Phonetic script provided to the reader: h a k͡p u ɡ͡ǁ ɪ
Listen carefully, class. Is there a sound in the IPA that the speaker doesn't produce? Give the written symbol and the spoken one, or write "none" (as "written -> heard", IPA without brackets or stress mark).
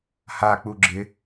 none